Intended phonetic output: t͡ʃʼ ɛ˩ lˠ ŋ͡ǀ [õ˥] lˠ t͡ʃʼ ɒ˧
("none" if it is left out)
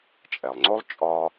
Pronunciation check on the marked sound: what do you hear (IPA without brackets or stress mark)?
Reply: o˥